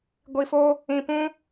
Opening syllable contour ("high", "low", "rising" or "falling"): low